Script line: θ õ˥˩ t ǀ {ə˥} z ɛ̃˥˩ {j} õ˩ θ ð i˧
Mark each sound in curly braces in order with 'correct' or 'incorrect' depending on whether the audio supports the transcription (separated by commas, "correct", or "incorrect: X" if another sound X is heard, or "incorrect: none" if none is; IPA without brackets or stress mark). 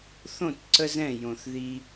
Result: correct, correct